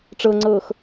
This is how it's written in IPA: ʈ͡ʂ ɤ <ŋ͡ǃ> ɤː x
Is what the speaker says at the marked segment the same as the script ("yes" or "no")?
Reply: no